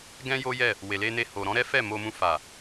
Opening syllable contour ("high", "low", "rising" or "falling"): high